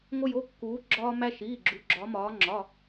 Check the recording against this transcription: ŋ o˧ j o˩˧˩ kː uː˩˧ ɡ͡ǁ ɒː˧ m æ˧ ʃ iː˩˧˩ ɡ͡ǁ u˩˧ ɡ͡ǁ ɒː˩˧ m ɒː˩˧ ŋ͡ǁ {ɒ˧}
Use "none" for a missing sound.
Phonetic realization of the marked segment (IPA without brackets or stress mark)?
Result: ɒ˩˧˩